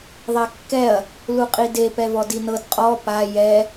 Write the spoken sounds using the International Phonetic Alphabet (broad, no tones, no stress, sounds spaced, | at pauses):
ðˤ ɛ kː ɛ ɐ̯ | l u qʼ i d e p ɛ v ɔ d i n ɤ d qʼ ɔ p a j ɛ